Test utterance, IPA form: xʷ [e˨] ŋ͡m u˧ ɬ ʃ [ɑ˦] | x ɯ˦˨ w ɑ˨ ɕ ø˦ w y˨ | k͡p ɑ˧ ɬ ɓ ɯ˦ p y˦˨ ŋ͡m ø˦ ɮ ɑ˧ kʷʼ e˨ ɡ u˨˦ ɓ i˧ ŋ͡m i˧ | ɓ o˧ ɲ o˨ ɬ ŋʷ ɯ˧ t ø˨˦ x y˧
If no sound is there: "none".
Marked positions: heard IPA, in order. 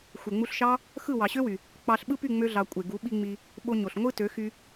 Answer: e˨, ɑ˦

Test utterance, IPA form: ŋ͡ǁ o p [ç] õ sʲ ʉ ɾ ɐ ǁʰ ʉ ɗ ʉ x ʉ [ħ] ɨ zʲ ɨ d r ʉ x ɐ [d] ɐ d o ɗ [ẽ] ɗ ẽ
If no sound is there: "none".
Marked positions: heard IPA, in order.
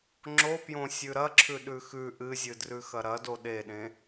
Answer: j, ʔ, ɾ, e

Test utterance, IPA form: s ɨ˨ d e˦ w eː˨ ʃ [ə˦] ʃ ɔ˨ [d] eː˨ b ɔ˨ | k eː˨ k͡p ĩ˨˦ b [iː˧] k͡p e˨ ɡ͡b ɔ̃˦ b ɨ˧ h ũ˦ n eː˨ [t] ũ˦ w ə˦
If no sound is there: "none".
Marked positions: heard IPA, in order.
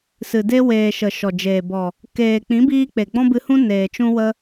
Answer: ə˨, d͡ʒ, iː˧, t͡ʃ

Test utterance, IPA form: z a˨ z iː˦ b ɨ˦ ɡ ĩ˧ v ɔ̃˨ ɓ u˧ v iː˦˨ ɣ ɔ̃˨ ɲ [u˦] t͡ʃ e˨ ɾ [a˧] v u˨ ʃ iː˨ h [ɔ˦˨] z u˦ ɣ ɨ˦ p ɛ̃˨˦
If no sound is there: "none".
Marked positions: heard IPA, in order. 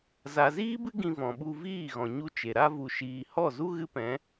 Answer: u˦, a˧, ɔ˦˨

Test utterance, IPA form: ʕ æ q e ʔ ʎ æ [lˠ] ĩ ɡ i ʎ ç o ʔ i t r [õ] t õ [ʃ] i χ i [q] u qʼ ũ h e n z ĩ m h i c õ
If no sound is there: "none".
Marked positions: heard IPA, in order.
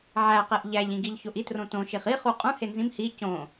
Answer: ʎ, õ, ʃ, χ

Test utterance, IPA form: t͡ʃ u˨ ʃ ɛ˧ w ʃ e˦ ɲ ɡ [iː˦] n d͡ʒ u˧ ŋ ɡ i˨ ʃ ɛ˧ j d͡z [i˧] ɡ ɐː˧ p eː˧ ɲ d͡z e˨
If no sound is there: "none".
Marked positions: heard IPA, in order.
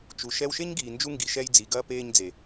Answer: iː˨, i˨

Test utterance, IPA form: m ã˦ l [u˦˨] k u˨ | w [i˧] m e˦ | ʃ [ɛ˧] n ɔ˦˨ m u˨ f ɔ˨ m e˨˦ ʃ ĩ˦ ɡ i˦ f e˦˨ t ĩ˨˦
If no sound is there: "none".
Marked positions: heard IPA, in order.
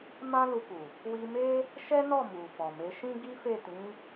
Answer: u˧, i˧, ɛ˦

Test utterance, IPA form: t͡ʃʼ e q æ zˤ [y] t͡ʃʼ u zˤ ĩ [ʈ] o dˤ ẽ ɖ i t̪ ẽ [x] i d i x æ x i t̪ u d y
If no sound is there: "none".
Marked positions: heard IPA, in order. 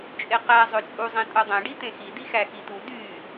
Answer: ø, tʼ, x

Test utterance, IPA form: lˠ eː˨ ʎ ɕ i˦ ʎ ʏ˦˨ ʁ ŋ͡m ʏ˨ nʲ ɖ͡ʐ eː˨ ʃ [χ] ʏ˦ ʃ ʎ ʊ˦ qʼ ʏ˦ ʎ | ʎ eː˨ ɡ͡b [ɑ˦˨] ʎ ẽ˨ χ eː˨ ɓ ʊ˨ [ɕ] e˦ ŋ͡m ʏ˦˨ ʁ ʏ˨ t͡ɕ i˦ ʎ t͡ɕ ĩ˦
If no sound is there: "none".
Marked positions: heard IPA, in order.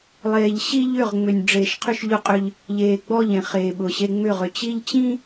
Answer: qʰ, ɔ˦˨, ɕ

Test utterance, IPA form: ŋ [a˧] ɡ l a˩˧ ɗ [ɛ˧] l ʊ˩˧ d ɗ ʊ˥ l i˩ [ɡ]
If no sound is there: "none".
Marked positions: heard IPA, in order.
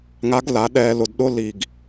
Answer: a˧˥, ɛː˧, ɡ

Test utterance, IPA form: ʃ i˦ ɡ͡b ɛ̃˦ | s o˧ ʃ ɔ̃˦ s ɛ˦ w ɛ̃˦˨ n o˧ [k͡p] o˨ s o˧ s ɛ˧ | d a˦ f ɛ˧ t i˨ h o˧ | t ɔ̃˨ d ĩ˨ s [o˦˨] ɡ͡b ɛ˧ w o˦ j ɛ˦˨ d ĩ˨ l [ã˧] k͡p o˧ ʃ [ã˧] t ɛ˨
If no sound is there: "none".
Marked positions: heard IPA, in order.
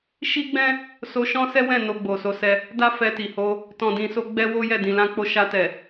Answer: ɡ͡b, o˧, ã˧, a˧

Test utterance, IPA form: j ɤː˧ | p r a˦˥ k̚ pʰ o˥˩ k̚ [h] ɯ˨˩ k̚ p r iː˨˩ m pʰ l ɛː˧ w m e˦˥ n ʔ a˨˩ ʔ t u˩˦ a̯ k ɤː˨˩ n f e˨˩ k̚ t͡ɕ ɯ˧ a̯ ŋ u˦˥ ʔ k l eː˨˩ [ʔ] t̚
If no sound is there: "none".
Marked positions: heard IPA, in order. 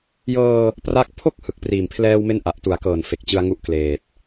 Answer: h, none

